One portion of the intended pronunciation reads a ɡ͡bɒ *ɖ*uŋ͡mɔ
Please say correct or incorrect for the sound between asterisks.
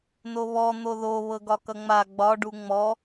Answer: correct